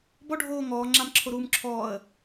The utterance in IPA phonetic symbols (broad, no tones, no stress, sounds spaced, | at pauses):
b ɔ ɖʱ oː ŋ ɔː ŋ͡ǁ a m ǁʰ o ɾ uː m ǁʰ ɔː ə̯